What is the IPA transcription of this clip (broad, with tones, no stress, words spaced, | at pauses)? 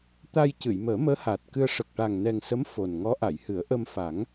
t̪a˧j cɨ˨˩˨jməː˨˩˦ məː˧˥haː˨˩t̚kɨ˧ə̯ ʂə˨˩k̚ʈa˨˩ŋnɛ˨˩ŋsə˧˥m fo˨˩n ŋɔ˧˥ʔa˨˩˨jhɨ˨˩˦ə̯ ʔə˧mfa˨˩˦ŋ